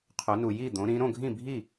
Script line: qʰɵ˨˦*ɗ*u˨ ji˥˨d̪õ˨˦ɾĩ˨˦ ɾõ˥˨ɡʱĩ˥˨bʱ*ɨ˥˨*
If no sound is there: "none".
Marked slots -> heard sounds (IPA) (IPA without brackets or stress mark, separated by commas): n, i˥˨